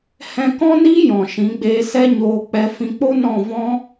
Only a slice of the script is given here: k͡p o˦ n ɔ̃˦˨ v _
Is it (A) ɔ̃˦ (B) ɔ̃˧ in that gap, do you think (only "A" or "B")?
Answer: A